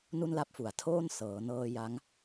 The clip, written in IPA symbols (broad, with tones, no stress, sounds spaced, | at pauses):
n u˥˩ n l a˦˥ p̚ f u˩˦ a̯ tʰ oː˥˩ n s ɤː˩˦ n ɤː˧ j a˦˥ ŋ